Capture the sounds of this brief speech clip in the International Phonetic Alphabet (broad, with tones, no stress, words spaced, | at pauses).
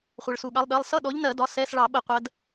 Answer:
χʷʌ˩ɭsu˩ɠɑ˨˦lˠ ɗɜ˩˧˩lˠ sʌ˧˥˧ɗɔ˨˦ʎnɜ˧˩˧dɒ˩˧˩ sɛ˧˥˧s ɭɑ˧˩˧ɓə˧˩˧ qʷɜ˨˦d